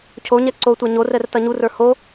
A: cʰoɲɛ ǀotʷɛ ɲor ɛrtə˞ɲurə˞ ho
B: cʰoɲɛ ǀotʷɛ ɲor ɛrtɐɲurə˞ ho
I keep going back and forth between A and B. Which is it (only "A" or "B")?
B